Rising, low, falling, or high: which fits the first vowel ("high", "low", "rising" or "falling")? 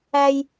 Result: high